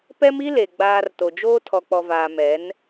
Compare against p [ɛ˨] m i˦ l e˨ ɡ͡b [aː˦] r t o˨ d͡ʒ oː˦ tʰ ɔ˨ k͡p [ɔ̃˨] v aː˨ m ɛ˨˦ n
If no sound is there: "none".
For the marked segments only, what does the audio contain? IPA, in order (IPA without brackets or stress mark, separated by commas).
ɛ˦, aː˨, ɔ˨